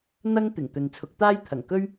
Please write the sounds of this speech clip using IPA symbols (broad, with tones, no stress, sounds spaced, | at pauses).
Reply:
n̪ ɐ˥ ŋ t̪ ɪ˨˩ ŋ t̪ ɵ˨ n t͡sʰ ʊ˨˥ k̚ t̪ aː˥ j t̪ʰ ɐ˨˩ ŋ k ɵ˥ ɥ